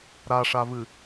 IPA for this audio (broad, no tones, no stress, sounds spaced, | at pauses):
ɾ a ʂ a v ɨ